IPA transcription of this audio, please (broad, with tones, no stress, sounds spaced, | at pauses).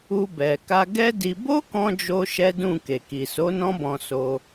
u˧ b ɛ˨ k a˧ ɡ ɛ˦ d i˧ b o˦ k ɔ̃˧ d͡ʒ o˦ ʃ ɛ˦ d ũ˦˨ k e˨ k i˨ s o˨˦ n ɔ̃˦ b ɔ̃˧ s o˧